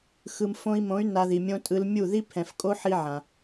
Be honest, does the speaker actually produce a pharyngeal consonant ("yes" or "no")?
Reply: yes